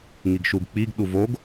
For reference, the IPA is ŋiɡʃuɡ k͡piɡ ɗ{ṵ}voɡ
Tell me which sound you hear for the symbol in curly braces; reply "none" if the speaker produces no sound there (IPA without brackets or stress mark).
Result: u